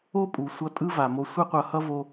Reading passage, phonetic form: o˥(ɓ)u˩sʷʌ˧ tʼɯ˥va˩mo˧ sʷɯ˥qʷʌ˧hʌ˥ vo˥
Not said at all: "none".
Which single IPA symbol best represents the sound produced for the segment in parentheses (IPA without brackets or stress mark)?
pʼ